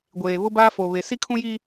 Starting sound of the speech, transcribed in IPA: ɡʷ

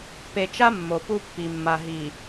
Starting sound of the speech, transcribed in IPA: p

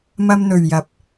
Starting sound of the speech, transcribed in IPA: m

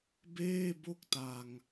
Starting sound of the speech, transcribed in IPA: b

